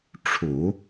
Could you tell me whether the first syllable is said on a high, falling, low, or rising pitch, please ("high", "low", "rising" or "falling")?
low